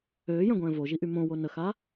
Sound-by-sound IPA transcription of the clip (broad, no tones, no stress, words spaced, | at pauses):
øːjœ̃ɡʷɛ̃ː voʒiʔy mõwo nəxa